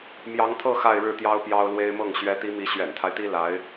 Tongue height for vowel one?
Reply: low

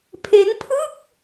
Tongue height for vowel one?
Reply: mid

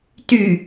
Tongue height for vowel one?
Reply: high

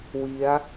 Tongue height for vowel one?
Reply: high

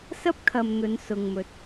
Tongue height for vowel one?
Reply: low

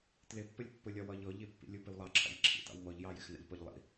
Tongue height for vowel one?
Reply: high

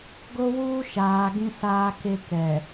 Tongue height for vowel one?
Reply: mid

